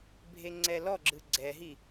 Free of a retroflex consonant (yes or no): yes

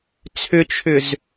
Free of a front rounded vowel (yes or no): no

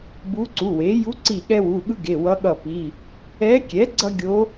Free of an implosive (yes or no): no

